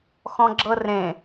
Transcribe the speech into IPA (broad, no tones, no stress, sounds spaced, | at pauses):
x ɔ̃ ɡ͡ǁ ɤ r ẽ